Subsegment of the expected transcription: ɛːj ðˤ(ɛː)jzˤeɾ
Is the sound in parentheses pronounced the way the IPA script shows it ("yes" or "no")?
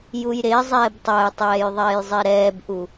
yes